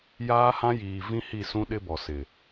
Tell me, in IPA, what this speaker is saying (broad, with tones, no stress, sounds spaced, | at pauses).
j aː˦ h ã˦ j iː˨ v ĩ˦ h i˦˨ s ũ˦ ɗ ɪ˦ b ɔ˨ s ɪ˨